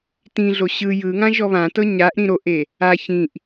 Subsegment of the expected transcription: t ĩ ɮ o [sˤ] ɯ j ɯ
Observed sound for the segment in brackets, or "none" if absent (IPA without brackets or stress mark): ɕ